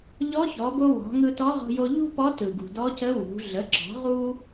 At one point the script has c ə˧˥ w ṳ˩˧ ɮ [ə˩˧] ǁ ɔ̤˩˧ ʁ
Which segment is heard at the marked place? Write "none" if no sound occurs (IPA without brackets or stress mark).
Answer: ə˩˧